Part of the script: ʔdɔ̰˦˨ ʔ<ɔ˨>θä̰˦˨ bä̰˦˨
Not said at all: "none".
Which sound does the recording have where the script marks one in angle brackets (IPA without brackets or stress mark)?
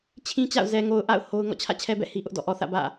ɔ˨